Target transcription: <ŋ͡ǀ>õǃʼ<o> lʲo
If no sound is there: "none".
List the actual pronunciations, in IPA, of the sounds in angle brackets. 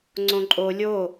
ŋ͡ǀ, o

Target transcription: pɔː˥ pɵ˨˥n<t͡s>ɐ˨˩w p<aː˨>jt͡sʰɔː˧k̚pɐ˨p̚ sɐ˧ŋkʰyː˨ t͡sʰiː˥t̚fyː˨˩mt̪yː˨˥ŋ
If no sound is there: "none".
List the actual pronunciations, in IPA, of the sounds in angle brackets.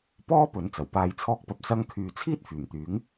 t͡s, aː˨

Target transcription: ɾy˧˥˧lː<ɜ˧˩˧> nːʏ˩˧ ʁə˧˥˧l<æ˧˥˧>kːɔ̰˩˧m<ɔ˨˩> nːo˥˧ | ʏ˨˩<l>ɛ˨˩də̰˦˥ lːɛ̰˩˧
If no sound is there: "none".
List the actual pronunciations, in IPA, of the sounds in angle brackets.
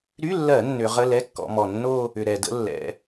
ɜ˧˩˧, ɛ˧˥˧, ɔ˨˩, ɾ

